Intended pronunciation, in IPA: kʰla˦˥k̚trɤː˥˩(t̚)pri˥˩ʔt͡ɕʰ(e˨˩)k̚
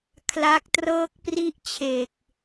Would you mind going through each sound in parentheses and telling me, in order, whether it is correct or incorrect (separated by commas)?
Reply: incorrect, incorrect